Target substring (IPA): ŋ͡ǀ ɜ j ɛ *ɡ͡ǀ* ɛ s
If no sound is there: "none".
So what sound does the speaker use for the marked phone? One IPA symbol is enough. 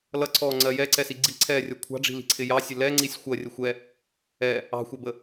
ǀ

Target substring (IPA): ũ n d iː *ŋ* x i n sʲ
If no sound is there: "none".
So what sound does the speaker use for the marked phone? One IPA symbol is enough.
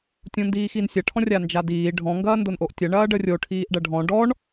none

